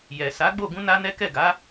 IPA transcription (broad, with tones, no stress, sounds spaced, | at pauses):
j ɛ˨ s a˨˦ ɡ͡b o˦˨ ɡ ũ˧ n a˦ n ɛ˦ k ɛ˦˨ ɡ a˨˦